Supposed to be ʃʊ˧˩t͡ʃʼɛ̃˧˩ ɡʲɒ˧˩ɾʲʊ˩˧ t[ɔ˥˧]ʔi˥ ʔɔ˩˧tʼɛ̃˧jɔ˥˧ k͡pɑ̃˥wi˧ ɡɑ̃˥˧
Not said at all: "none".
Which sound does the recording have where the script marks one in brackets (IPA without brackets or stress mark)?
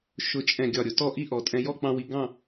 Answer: ɔ˥˧